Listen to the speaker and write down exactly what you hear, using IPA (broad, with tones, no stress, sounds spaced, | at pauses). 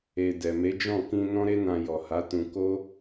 e˨ d ɛ˨ m e˨˦ d͡ʒ ɔ̃˦˨ k ĩ˧ n ɔ̃˦ ɾ e˦ n ã˧ j ɔ˨ h a˨˦ t ũ˧ k o˦